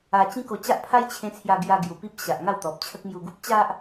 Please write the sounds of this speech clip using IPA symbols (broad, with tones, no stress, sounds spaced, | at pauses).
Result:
a˧ t͡ɕ ĩ˦ k o˧ t͡ɕ a˦ ʔ pʰ a˦ j t͡ɕʰ ẽ˧ t͡sʰ j a˧ ɡ j a˧ ɡ j u˨˩ p i˦ p̚ ɕ a˨ ʔ ŋ a˥˧ w t̪ ɔ˨ p̚ t͡ɕʰ ə˦ k̚ m j u˧ ɡ u˦ p̚ t͡ɕ a˦ ʔ